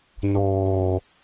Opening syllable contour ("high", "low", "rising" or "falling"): low